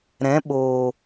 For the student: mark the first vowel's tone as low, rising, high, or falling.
rising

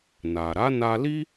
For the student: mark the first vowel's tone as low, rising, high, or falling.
low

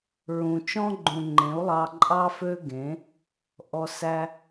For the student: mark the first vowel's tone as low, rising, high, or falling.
low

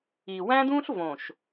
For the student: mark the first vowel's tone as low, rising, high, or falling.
low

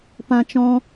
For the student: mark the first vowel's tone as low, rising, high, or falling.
high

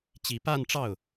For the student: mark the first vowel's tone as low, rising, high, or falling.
low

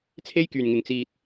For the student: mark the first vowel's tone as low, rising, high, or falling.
high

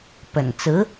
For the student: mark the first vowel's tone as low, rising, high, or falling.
low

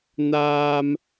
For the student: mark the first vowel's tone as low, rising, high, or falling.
high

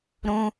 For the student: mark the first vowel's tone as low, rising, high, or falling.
high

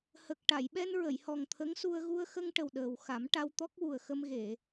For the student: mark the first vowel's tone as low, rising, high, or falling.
low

